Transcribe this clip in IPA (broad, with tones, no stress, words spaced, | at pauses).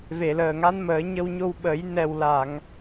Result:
ve˨˩˨ləː˨˩ ŋa˧˥nməː˨˩˦ɲə˧wɲo˧w ɓə˨˩˦jnɛ˨˩wla˨˩˨ŋ